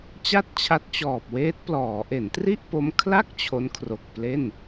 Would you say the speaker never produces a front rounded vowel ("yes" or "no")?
yes